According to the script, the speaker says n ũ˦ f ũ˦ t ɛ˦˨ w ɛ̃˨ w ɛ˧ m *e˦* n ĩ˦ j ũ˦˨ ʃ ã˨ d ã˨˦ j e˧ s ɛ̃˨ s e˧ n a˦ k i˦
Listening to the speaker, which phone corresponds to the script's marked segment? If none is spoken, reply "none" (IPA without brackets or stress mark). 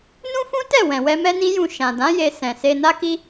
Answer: ɛ˦